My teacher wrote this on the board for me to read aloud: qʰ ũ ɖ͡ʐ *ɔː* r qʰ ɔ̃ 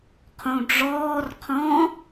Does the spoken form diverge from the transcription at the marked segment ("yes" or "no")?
no